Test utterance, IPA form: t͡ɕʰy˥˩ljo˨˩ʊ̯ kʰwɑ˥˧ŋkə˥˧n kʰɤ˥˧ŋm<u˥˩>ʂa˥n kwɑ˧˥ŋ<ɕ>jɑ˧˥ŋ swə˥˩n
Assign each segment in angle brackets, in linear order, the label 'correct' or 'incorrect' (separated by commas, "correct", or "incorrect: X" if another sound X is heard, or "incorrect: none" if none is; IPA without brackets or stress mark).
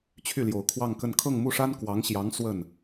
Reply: correct, correct